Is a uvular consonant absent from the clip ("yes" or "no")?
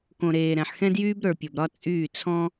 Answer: yes